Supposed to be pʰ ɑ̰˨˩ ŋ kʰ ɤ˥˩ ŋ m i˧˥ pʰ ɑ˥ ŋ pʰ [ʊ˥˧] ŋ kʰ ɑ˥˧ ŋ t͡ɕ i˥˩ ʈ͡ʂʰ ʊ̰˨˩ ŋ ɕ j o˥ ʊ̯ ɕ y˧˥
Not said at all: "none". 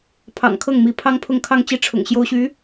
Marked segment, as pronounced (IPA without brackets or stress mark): ʊ˥˧